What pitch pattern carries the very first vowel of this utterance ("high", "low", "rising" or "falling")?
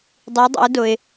rising